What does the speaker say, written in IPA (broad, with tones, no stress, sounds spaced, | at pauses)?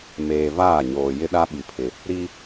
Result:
m eː˨ v aː˦˨ ɲ oː˨ j ɪ˦ ɗ a˦ ɓ i˨ pʰ ɪ˨ | ɾ i˦